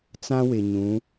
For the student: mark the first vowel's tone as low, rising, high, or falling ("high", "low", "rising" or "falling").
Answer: high